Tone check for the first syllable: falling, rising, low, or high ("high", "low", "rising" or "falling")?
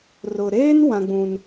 low